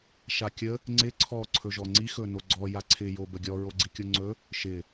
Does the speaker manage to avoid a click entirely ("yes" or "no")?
no